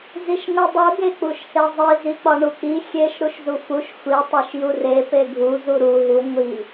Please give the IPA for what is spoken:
z i ʃ ŋʷ i dˤ u ɡ e k͡p u ʃ h e zˤ i z i k͡p ɒ ɳ u k͡p i xʲ e ʃ ɾ u ʃ z u f u ʃ xʷ i tˤ e ʃ j u r e p e ɡʱ u z u ɾ u ɦ u ŋʷ i

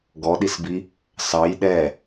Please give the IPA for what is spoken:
ɡ ɔ ɗ i s b i | s ɑ j ɗ ɛ

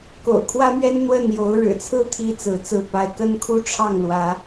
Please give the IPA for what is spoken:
k o̰˨˩ ʊ̯ kʰ w ä˥ m ɥ ɛ˥ n n̪ w ə˥˩ n j o˧˥ ʊ̯ ɻ ɻ̩˨˩ t͡sʰ ɹ̩˥ t̪ʰ i˧˥ t͡s ɹ̩˧˥ t͡s ɹ̩˥˧ p a˥˩ ɪ̯ k ə˥ n kʰ u˥˧ ʈ͡ʂʰ ɑ˥˩ ŋ l w ä˧˥

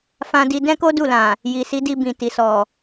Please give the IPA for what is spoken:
f ã˧ d i˧ d ɛ̃˦ k o˦ d u˦˨ l ã˨ | j i˨ s i˨˦ d i˧ b ĩ˨ t i˨ s ɔ˨

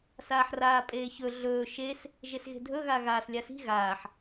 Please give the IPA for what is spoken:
s aː ħ r aː pʼ eː ç ɵ ɮ ɵː ʃ e s | ʒ e s ɣ e̤ dʱ ɵ ɣ a ɣ aː s lʲ a s i̤ ɣ aː ħ

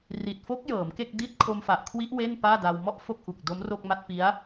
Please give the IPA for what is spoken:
r i˨˩ t̚ f o˦˥ k̚ j ɤː˩˦ m k e˥˩ k̚ d i˥˩ t̚ kʰ o˧ m f a˨˩ ʔ kʰ w i˦˥ ʔ w e˥˩ n p aː˥˩ d a˧ w m ɔ˥˩ ʔ f o˥˩ k̚ ʔ u˨˩ k̚ d o˦˥ m r o˥˩ k̚ m a˦˥ t̚ p i˦˥ a̯

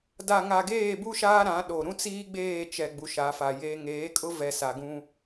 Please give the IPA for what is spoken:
d a˨ ŋ a˨ ɡ eː˦˨ b u˦ ʃ aː˦ ɾ ã˨˦ ɗ o˨ ɾ ũ˦ t͡s iː˦ ɡ͡b eː˦˨ t͡ʃ ɛ˨ ɡ͡b u˨ ʃ a˨˦ f a˨ j eː˦ ŋ eː˨˦ kʼ ʊ˦ v ɛ˨ s a˨ ɡ ũ˦

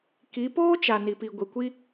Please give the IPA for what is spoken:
k i˨˦ p oː˦ t͡ʃ a˨ n i˨ p i˨ ɡʷ i˨ kʷ i˦

